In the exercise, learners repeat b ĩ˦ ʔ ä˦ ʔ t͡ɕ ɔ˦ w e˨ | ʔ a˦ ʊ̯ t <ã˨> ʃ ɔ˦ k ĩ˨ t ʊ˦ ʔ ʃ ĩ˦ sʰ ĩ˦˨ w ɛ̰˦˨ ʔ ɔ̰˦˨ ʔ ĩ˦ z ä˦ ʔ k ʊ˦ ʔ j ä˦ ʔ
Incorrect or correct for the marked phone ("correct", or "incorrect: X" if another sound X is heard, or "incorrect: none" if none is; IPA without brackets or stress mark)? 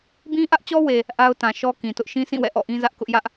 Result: correct